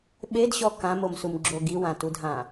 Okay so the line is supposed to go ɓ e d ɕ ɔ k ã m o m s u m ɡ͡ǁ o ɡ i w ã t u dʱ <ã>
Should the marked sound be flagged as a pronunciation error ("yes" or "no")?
no